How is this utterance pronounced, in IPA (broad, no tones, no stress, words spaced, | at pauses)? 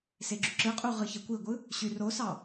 seɡ͡ǁyǁɯqʼu ʁɯçekʷiɡʷɯ | ɕyrosɑ